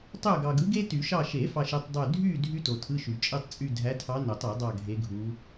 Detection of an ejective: present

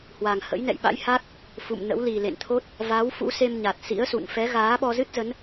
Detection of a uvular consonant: absent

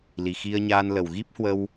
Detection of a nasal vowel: absent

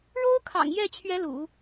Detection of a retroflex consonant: present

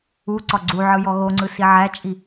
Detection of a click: present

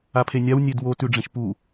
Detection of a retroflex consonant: present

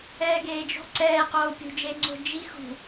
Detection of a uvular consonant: present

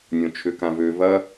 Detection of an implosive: absent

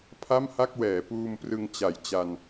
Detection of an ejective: absent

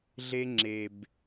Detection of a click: present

